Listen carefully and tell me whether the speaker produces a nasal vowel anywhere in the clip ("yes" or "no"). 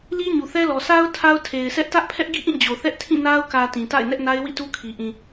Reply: yes